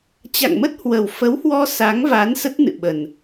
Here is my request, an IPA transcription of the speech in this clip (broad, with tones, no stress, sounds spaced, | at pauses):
t͡ɕ a̰˧˨ ŋ m ə˦˥ t̚ h w ə˨˩ w f ə˨˦ w h w ɔ˧ s a˨˦ ŋ v a˨˦ n s ə˦˥ t̚ n ɨ̰˧˨ ɓ ə˨˩ n